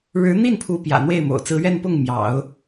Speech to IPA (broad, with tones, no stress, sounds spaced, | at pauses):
ɻ ɻ̩˧˥ n̪ i˥˩ n pʰ u˧˥ p j ä̰˨˩ n̪ w e˥˩ ɪ̯ m o̰˨˩ ʊ̯ t͡s ɹ̩˧˥ ɥ ɛ˥˧ n p ʊ˥˩ ŋ m j ɑ̰˨˩˦ ʊ̯